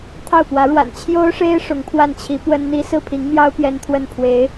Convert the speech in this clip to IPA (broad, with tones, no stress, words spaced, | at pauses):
t̪ʰɑ˥˩ʊ̯pwä˧˥ɻwa̰˨˩n t͡ɕʰjo˥ʊ̯ʂe˥ɪ̯ ʂʊ˧˥ŋpʰwa˥˩nt͡ɕʰi˧˥ pwə˥nn̪i˥ sɹ̩˥˩pʰi˧˥ŋmjɑ˥ʊ̯ pjɛ˥nt̪ʰwə˥˩n pʰwe˧˥ɪ̯